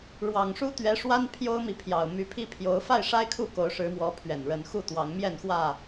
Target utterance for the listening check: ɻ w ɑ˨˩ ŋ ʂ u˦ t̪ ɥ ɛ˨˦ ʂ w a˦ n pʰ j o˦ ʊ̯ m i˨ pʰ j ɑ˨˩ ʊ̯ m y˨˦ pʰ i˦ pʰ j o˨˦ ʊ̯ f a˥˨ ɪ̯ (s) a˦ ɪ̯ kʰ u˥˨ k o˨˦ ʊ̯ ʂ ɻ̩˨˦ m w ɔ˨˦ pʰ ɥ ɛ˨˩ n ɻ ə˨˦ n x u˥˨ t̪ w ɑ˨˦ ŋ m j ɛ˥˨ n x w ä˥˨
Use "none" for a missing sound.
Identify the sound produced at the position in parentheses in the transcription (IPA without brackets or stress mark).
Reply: ʂ